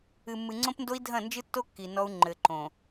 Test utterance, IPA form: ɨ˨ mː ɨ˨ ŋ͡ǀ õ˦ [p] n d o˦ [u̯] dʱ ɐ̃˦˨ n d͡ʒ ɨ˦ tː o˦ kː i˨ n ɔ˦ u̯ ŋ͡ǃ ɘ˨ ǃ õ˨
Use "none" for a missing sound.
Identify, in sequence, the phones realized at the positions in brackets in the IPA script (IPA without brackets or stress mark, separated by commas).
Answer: p, i̯